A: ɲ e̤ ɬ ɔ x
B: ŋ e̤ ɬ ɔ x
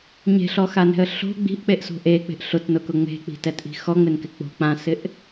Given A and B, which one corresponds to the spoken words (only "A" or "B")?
A